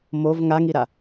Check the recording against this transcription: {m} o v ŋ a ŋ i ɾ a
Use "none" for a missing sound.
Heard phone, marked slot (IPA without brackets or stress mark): m